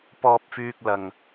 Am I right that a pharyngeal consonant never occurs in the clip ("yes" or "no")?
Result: yes